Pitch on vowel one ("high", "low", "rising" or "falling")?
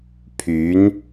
rising